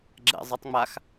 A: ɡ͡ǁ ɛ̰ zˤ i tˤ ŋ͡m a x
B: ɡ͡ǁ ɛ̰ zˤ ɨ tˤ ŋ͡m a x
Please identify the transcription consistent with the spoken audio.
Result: B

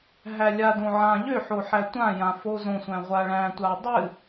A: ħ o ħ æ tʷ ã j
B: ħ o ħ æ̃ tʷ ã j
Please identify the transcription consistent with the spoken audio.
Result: A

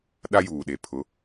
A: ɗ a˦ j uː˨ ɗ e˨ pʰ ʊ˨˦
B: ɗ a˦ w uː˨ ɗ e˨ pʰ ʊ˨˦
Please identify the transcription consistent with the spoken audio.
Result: A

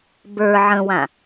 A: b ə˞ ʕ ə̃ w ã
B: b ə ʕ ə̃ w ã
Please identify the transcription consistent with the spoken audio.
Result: A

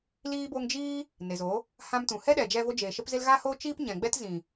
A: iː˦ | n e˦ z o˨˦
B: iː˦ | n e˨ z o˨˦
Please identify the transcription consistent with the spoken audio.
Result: B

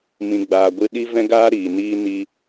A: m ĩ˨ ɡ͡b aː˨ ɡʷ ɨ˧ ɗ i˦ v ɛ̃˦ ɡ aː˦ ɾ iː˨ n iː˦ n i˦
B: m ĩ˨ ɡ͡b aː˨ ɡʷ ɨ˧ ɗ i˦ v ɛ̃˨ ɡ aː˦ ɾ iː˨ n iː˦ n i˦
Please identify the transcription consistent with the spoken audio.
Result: A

